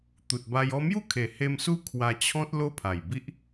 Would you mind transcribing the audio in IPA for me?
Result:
t̪ u˨ t̚ b a˧ j ɔ˧ m j u˥˧ kʰ e˨˩ h e˦ m s u˦ kʰ w a˧ t͡ɕʰ ɔ̃˦ t̚ l o˦ pʰ a˨˩ j b i˦ ʔ

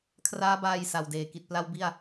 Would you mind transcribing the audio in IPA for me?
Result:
kʰ r aː˦˥ b aː˧ j s a˨˩ w d eː˨˩ k i˨˩ t̚ p l a˥˩ w b i˥˩ a̯

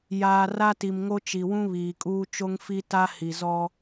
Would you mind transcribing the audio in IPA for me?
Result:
j aː˨ r a˦ t i˨ m ŋ o˦ t͡ʃ i˨ w ũ˦ β iː˨ kʼ uː˦ t͡ʃ o˦ ŋ f i˦ t a˦ h i˨ z ɔ˦

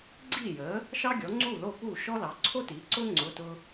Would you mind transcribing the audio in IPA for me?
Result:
ɡ͡ǀ iː˥˩ j əː˩˥ | ʃ ɑ˥ ɡʲ ɔ˩˥ ŋ͡ǀ uː˥˩ l o˥˩ p uː˥˩ ʃ ɔ˥ l ɑ˩˥ ǀʰ o˥ t iː˩˥ ǀ ʊː˥ ŋ͡ǀ ʊ˧˥˧ t ʊ˥

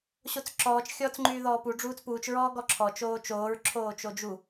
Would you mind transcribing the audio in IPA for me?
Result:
ɕ o t͡s ǁ ɔː t͡ʃ xʲ ɔː t͡s ŋ͡ǃ yː ð ɔː p u ɖ͡ʐ uː t͡s p uː t͡ʃ ɹ ɔː ɡ ɔ ǁʰ ɔ t͡ʃ oː t͡ʃ oː ɹ ǁʰ oː t͡ʃ o d͡ʒ u

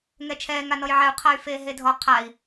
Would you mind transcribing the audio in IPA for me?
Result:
ŋ ɛ t͡ʃʰ ɛː ŋ a n ɔ j ʕ ɛ u̯ qʰ a y̯ f eː ɦ e dʱ ɔ qʰ a i̯

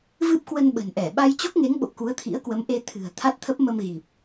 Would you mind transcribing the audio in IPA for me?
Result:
v ɨ˦˥ p̚ k w ə˧ n ɓ ə̤˨˩ n ʔ ɛ˧˩ ɓ a˧ j t͡ɕ o˦˥ k̚ ŋ e˨˦ ŋ ɓ o̰˧˨ k u˨˦ ə̯ t̪ʰ ḭ˧˥ ə̯ k w ə˨˦ m ʔ e˧ t̪ʰ ɨ̤˨˩ ə̯ t̪ʰ a˦˥ t̚ t̪ʰ ə˦˥ p̚ m ə˧ m ɣ i˨˩ p̚

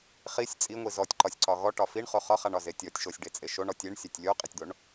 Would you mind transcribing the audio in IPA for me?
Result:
χ i sʲ t͡sʼ i ŋʷ i z ɔ tʲ ǃ ɒ sʲ ǀ ɒ ɣ ɔ ʈ ɒ f i ɳ χ o χ ɒ χ a ɳ ɒ z e tʲ ɔ tʲ ʃ o sʲ ɖ e t͡sʼ e ʃ o ɳ ɔ tʲ e ɳ sʲ a tʲ lʲ o qʼ i tʲ d̪ o ɳ

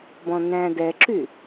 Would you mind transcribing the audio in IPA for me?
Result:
b ɔ̃ n̪ æ̃ d ɛ ǁ y

